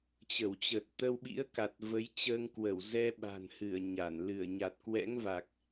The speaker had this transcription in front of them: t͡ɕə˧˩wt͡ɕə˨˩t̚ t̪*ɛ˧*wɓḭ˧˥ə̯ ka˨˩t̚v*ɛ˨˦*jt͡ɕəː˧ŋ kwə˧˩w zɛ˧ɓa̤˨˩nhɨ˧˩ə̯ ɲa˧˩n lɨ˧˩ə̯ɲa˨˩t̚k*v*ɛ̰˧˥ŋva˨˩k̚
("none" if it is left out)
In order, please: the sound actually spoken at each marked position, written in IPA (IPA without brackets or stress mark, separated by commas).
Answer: ə˧, ə˨˦, w